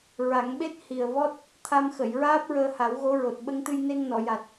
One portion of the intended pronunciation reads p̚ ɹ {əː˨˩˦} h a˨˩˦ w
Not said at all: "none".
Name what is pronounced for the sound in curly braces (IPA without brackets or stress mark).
əː˧